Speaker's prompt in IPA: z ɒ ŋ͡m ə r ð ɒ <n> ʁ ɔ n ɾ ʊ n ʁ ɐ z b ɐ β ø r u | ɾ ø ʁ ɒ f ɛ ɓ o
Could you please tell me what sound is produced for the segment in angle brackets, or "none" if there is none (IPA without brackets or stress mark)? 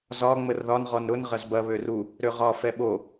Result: n